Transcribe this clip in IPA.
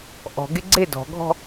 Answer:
ʔ ɔ̤ ɡ e ɡ͡ǀ e d ɔ̤ ɡʱ ɔ̤

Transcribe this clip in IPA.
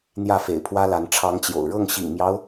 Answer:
n̪ j ä˥˩ f ḛ˨˩ ɪ̯ pʰ w ä˥ l a˧˥ n ʈ͡ʂʰ ɑ˧˥ ŋ t͡ɕ j o̰˨˩ ʊ̯ ɻ ɤ˥˩ ŋ ɕ ḭ˨˩ ŋ m j ɑ˦ ʊ̯

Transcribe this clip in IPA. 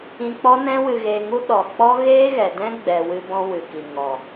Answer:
ĩ˧ k͡p ɔ˦ n ɛ̃˦ w ɨ˧ ɣ eː˧ ŋ u˦ ɗ ɔ˨ k͡p ɔ˦ ɣ eː˦ ɣ ɛ˨ d ɛ̃˦ ɡ͡b ɛ˨ w ɨ˧ b ɔ̃˧ w ɨ˨ k i˨ ŋ ɔ˨

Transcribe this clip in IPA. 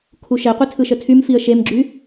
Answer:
kʰ u ʃ ɛ qʷ i tʰ ɯ ʃ ə tʰ y m f i ə̯ ʃ e m ɡ͡ǁ y

